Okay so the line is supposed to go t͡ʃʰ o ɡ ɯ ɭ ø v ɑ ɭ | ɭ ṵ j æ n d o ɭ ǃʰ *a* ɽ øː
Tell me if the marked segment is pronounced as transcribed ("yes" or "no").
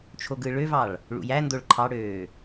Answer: no